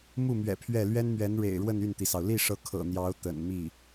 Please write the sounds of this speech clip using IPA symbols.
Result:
m u˥˩ m ɥ ɛ̰˨˩ pʰ ɥ ɛ˥˩ l ɥ ɛ˥ n m ɥ ɛ˧˥ n ɻ ḛ˨˩ ɪ̯ ɻ w ə˥˧ n y˥˩ n t̪ i˩ s ɑ˩ ʊ̯ l i˥˩ ʂ ɤ˧˥ kʰ ɤ̰˨˩ n̪ j ɑ˧˥ ʊ̯ t̪ ə̰˨˩ n m i˥˩

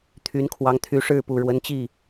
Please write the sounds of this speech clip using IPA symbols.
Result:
t̪ʰ y˧˥ n kʰ w ɑ˧˥ ŋ t̪ʰ y˧˥ ʂ ɻ̩˥˩ p u˨˩ ɻ w ə˧˥ n t͡ɕ i˥˩

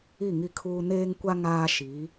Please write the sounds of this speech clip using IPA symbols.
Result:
i˦˨ ŋ i˦ kʰ uː˦ n eː˦ ŋ kʷ a˦ ŋ aː˦ ʃ i˨˦

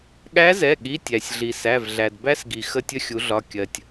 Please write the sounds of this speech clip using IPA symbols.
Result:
ɠ æ˧˥ z ɛ˩˧˩ ɠ i˩˧˩ tʲ æ˩ sʲ ɮ i˩ s æ˩˧˩ v ɮ æ˩ d b æ˥ s ɡ i˩ x ə˥ tʲ ə˥ xʲ u˩˥ ɮ ɒ˩˧˩ kʲ ɜ˩ tʲ

